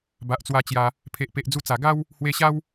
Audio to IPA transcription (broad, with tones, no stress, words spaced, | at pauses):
ba˨ʔt͡swa˧t͡ɕja˧ | pʰe˨ʔpe˨ʔd͡zu˧t͡sa˨˩ ɡa˦w | hwe˧ɕa˦w